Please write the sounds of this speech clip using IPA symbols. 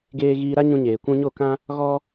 ɡ eː˧ ɣ iː˧ ɾ a˦ ɲ ũ˧ ɲ eː˨ kʷ ũ˧ ɲ o˦˨ k ã˦ | ɣ ɔ˦

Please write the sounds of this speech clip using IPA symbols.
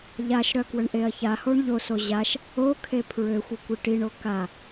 ʎ a ʃ ɾ œ k w ə ɳ ʔ e ɐ̯ ç a h o ɳ ʎ o s o ʑ a ʃ | o kʰ e pʰ ɹ ø xʷ ə kʷ e ʈ i ɳ o k a

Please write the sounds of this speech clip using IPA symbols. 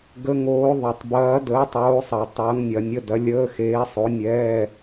ɡ ə˨˥ ŋ oː˨˥ ðˤ ɐ˨˩˦ tˤ b ɐː˨˥ d əː˨˥ tˤ oː˨˥ sˤ ɐ˨˩˦ tˤ ɐː˨˥ ŋ nʲ ɐ˨˩˦ nʲ ə˧˥˧ d ɐ˨˥ lʲ əː˧˥˧ x eː˨˥ sˤ o˨˥ nʲ ɛː˧˥˧

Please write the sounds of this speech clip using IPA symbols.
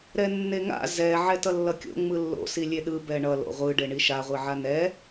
ɾ ɛ nː e ŋ a̰ z ɛ ʕ ɛ t ʌ lː ʌ kʲ o̰ ŋ͡m ɯ lː o̰ s i lʲ e ɗ ɯ b ɛ ɳ ʌ l o̰ ʁʷ ɯ ɖ e ɳ i ʃ a ʁʷ i ʕ a n ɛ

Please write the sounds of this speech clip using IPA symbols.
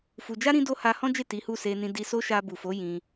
f u˧ d͡ʒ a˦ ɾ ĩ˦ d o˦ h a˧ h ɔ̃˦ d͡ʒ e˦˨ t i˨˦ h u˦˨ s e˧ n ĩ˧ d i˧ s o˦ ʃ a˧ b u˨ f o˨˦ j ĩ˧

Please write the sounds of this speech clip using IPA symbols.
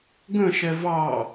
ɡ ə̃ ʃ ɛ v ɑ

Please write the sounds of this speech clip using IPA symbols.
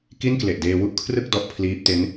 k i˥˩ n k l e˨˩ ʔ d eː˧ w u˥˩ ʔ kʰ r ɯ˥˩ k̚ d ɔ˦˥ ʔ pʰ l iː˦˥ p̚ t e˦˥ n

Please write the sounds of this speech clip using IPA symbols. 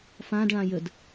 f ã d ɭ ã j ə d

